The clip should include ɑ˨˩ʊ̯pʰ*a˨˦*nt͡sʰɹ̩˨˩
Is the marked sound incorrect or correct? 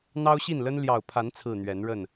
correct